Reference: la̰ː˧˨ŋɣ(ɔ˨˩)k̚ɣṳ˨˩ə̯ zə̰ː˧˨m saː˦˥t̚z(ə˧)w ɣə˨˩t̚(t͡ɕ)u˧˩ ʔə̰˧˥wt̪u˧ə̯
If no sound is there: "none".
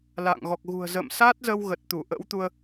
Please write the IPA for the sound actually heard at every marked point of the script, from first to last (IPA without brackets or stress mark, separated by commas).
ɔ˨˩, ə˧, t̪